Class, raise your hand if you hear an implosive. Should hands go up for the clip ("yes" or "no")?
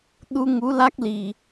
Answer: yes